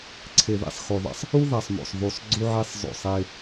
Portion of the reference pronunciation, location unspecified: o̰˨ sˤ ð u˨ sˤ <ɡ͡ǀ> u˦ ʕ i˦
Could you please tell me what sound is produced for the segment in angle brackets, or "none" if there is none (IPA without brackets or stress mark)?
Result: ɡ͡ǀ